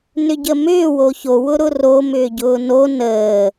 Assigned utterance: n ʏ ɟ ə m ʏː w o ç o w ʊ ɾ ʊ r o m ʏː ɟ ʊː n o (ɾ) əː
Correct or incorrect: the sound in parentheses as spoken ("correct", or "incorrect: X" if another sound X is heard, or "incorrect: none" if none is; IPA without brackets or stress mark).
incorrect: n